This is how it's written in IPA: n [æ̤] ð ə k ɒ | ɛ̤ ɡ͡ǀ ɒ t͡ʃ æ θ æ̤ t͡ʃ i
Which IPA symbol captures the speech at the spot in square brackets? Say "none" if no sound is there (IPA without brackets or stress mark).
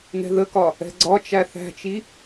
ɛ̤